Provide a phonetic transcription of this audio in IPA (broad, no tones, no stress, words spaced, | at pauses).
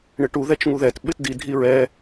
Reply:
ɳɪʈu ðɛt͡ʃŋuðɛt ɓɪtdi dʱiɹɛ